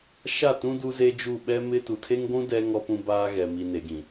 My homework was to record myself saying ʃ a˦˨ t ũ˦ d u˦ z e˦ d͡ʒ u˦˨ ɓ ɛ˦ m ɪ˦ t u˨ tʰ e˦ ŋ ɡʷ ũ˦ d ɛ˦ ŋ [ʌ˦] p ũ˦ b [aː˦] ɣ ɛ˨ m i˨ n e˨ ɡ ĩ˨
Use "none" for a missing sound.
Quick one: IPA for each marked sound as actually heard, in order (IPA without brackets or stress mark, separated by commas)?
ɔ˦, aː˦